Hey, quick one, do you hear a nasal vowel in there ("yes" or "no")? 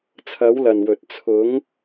no